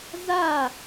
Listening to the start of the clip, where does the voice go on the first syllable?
falling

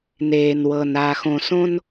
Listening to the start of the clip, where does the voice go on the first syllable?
low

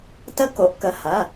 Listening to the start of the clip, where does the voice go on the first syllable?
high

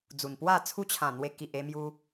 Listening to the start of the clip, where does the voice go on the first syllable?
low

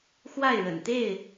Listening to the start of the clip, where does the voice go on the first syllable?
falling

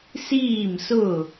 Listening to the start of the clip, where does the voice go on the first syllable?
falling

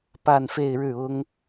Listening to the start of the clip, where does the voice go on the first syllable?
falling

